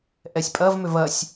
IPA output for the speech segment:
ʔɛsʲpʼɐvmʏv ɐsʲ

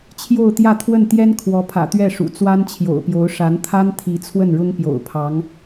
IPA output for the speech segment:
t͡ɕʰjo˥˧ʊ̯t̪jä˥˧t̪ʰwə˥˩n t̪jɛ˥n kʰwɔ˧˥pʰä̰˨˩t̪ɥɛ˥˩ ʂṵ˨˩ t͡swa˥nt͡ɕʰjo̰˨˩ʊ̯pjo˧˥ʊ̯ ʂa˧˥nt̪ʰa˥n t̪ʰi˧˥ t͡sʰwə˥˩nɻʊ˥ŋ pjo̰˨˩ʊ̯pʰɑ˧˥ŋ

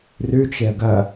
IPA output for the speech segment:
rʉt͡ʃeə̯ ɡɐ

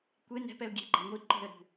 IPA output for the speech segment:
kʷe nɛ̤pɛʊ̯ ɡʲe̤ɡ͡ǃa ŋʷi ǃe̤ə̯ɾṳ

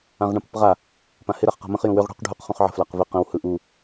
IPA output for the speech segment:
ãʁɳə̃pɪpʁa | pãhɪ ɾaχqa̤mə̃χ jũwʏʁ ɽṳq ɖʱuq χũχʕə̤ flaqvɪ qə̃w hɯʔu

